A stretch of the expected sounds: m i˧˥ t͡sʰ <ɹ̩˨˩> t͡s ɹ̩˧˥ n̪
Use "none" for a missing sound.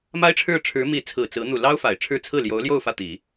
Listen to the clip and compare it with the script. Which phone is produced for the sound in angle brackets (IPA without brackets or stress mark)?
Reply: ɹ̩˨˩